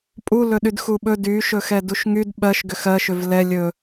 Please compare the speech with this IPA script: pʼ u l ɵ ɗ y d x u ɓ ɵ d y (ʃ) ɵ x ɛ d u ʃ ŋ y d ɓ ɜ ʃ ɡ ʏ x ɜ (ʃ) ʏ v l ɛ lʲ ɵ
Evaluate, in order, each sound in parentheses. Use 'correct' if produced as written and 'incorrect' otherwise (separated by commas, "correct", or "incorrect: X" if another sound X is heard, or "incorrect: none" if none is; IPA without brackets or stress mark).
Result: correct, correct